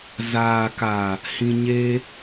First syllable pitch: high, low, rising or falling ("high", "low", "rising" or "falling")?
low